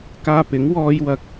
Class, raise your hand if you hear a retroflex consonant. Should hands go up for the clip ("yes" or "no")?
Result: no